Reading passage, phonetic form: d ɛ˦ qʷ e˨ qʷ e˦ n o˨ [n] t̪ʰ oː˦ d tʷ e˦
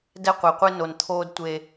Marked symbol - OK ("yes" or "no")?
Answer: yes